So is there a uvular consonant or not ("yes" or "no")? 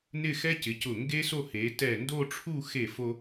no